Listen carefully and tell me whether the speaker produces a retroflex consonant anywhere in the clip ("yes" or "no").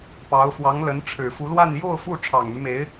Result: yes